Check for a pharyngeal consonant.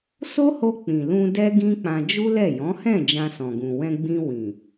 absent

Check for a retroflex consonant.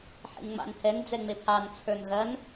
absent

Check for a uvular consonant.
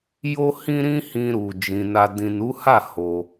absent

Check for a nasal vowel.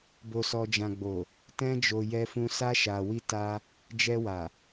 present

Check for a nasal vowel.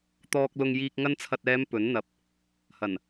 absent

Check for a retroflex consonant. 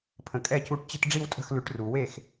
present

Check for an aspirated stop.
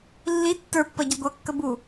absent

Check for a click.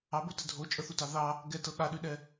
absent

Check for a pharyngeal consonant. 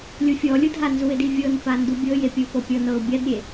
absent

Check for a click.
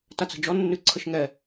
present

